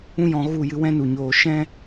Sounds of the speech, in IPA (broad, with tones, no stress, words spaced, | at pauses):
ũ˦jɔ̃˧ ɣu˦˨jɨ˧ wɛ̃˦nu˨ ɲoː˨ʃɛ̃˦